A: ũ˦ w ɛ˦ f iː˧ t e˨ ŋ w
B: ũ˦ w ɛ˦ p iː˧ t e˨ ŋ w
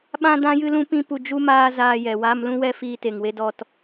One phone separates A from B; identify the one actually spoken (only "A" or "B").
A